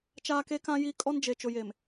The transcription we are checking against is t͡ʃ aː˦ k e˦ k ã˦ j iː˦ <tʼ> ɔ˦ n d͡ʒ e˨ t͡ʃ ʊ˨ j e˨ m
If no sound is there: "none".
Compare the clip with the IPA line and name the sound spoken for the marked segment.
kʼ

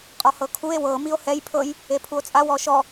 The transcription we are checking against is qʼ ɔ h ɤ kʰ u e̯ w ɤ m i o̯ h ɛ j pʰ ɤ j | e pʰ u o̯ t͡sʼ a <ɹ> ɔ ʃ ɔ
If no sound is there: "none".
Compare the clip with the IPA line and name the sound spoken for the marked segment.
w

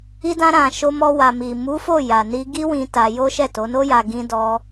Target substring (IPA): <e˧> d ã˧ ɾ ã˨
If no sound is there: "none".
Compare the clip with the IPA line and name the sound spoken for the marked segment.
i˧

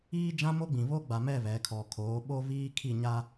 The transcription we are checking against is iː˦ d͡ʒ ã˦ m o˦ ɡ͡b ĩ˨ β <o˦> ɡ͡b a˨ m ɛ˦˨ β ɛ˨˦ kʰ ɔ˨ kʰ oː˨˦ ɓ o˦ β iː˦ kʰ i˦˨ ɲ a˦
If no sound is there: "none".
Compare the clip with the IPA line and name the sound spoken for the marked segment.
o˦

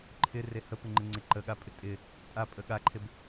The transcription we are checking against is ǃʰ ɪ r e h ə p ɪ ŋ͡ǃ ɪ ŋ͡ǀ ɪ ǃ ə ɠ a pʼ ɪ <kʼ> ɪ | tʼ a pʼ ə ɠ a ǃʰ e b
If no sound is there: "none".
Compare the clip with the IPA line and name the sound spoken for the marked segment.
tʼ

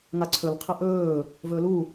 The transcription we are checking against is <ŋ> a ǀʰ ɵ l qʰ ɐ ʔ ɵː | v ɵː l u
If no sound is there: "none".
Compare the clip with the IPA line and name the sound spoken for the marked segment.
ŋ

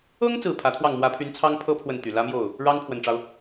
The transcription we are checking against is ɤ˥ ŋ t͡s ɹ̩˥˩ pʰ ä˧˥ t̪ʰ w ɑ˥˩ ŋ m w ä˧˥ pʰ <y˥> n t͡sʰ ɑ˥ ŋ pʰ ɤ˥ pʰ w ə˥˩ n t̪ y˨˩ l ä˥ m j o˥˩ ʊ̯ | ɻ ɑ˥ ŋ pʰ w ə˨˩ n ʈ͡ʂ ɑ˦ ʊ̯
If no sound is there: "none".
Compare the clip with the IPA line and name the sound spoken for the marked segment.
y˧˥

